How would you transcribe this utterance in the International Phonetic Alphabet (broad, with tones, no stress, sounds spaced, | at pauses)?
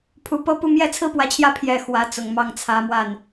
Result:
pʰ u˨˩ p ɤ˥˧ p u˥˧ m j ɛ˥˩ t͡sʰ ɹ̩˥ p w ä˧˥ t͡ɕʰ j ä˥˩ pʰ j ɛ˨˩ x w ä˧˥ t͡s ʊ˨˩ ŋ m ɑ˥˩ ŋ t͡sʰ ä˧˥ m w a˥˩ n